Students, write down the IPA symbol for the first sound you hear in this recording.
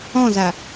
ɔ̃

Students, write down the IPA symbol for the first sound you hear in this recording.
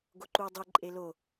ɡ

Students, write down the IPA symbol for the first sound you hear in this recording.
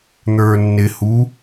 n̪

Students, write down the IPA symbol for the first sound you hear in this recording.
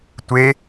tʷ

